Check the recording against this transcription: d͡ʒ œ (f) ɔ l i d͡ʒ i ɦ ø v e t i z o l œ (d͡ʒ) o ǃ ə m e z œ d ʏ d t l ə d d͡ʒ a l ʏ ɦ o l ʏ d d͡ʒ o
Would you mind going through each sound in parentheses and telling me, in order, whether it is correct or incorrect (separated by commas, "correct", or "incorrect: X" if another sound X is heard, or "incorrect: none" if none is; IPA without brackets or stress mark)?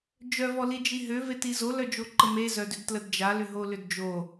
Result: incorrect: v, correct